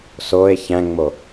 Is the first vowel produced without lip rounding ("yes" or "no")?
no